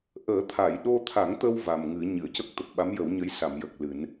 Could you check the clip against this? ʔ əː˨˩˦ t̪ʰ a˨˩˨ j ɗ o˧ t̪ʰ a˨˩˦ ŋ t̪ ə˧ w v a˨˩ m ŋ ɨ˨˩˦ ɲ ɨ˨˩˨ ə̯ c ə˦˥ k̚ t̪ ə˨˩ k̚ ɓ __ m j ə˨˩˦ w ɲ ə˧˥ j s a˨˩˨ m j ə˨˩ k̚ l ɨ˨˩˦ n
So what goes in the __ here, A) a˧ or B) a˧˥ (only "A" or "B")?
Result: B